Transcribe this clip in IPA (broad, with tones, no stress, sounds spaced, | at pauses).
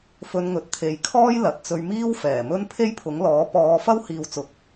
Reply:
f ɵ˧ n ŋ ɵ˨˥ t̚ t̪ʰ e˨ j kʰ ɔː˥ j l ɐ˨ t̚ t͡s ɵ˧ ɥ m iː˥ w f ɛː˨˩ m ɵ˥ n pʰ e˥ j pʰ ʊ˨˥ ŋ l ɔː˨˥ p ɔː˧ f ɐ˥ w h iː˨ w t͡s ʊ˨˥ k̚